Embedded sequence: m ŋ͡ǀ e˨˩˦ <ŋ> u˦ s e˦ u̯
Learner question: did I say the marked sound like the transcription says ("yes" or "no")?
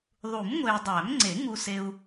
yes